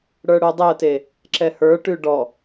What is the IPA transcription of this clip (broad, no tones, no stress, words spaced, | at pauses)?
ɽə˞ɽudˤeə̯te | ǁɛhə˞ʈʉ ɖɔ